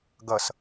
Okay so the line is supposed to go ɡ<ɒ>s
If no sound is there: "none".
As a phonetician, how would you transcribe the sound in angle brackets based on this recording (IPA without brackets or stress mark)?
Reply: ʌ